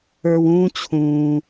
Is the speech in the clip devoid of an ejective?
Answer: yes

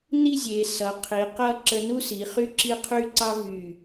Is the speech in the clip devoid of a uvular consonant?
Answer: no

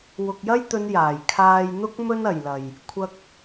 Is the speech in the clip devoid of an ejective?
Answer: yes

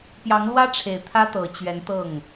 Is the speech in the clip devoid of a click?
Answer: yes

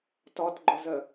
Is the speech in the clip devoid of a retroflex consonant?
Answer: yes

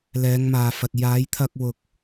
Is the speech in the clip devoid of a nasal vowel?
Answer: yes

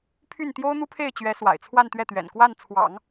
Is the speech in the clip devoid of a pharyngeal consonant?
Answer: yes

